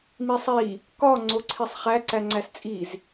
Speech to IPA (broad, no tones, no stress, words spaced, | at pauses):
misˤi | kɒ ŋ͡ǀoǀʰisˤχæ ǀæŋ͡ǀæst͡sʼiz